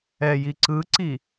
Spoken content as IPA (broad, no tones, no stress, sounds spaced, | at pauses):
ɛ j i ǀ ɯ ǀ i